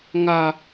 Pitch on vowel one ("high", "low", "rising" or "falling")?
low